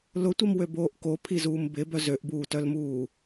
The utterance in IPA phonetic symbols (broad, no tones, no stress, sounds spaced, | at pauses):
l ʊ tʷ i m w ø b oː ʔ k o pʰ i z uː m b ɪ b œ z ø ʔ b uː t œ l m uː